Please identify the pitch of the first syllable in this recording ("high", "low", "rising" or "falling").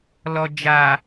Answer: low